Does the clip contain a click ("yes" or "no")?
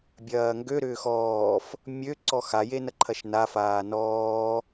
yes